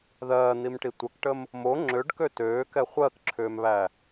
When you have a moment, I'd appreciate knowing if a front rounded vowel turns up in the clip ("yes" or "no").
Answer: yes